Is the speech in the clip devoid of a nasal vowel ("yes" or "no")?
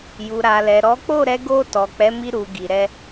yes